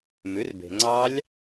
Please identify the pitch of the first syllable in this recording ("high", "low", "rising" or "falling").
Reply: rising